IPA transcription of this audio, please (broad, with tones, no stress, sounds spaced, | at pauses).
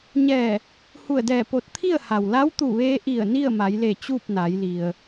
ɲ ɛː˧˩ | h u˧˩ ə̯ d ɛː˧˩ p o˧˩ t̚ t̪ʰ i˥˨ ə̯ h a˩ w l a˧˥ w t̪ u˧˩ ʋ eː˧ ʔ i˧˩ ə̯ n i˥˨ ə̯ m a˩˧ j l e˧˩ t͡ɕ uː˥˨ p̚ n a˩˧ j l i˩ ə̯